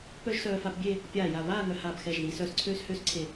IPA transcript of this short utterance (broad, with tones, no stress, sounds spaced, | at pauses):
p œ˥ ʒ s œː˧ f a˧ p bʲ e˥˧ | pʲ aː˧˩ j a˧˩ β aː˥˧ ŋ œ˧ h aː˧˩ b x ɛ˧˩ ʒ ð i˩˧ s œː˧ s ǀʰ øː˥ s h øː˥ s ǀʰ e˧˩